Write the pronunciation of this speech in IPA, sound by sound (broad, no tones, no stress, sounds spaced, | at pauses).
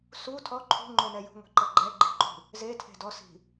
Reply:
s u tʰ ɔ ǃʰ ṳ ŋ͡ǃ o n ɛ j ṳ ŋʷ i̤ ǃ ɤ ɡ͡ǃ ɛ ɡ͡ǃ i̤ ǃ ṳ | z e tʰ e̤ d ɔ s i̤